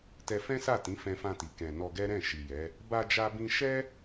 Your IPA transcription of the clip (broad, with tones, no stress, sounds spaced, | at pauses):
t ɛ˧ f ɛ̃˦ s a˦˨ t ĩ˨˦ f ɛ̃˧ f ã˧ t i˨ k ɛ̃˨ n ɔ˧ ɡ ɛ˦ ɾ ɛ̃˦˨ ʃ i˨ j ɛ˨˦ | b a˧ d͡ʒ a˧ b ĩ˧ ʃ ɛ˦